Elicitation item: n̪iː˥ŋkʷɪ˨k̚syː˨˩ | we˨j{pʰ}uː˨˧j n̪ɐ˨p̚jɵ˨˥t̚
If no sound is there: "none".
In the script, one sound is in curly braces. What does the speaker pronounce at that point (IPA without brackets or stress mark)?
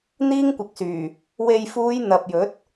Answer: f